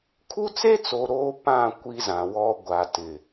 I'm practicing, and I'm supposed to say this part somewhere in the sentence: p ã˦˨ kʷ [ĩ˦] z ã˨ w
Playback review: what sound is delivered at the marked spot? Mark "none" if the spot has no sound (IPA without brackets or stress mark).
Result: i˦